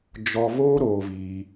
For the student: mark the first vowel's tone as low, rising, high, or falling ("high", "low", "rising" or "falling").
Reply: high